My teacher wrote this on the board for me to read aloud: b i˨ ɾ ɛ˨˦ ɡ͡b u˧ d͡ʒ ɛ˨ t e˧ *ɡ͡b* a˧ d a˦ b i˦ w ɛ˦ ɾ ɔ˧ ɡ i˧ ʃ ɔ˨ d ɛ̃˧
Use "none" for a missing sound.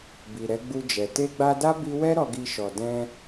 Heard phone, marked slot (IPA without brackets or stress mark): ɡ͡b